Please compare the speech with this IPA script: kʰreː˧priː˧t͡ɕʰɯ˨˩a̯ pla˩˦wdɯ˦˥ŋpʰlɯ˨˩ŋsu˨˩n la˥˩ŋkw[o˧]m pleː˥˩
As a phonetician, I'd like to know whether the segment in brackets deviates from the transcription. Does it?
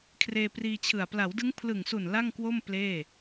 yes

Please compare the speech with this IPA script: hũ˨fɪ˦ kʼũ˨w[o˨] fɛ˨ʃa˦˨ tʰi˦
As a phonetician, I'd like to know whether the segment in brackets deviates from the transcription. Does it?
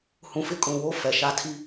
yes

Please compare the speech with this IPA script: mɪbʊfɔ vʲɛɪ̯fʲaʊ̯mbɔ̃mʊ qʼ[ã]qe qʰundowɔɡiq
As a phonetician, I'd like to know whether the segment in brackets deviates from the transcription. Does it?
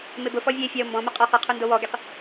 yes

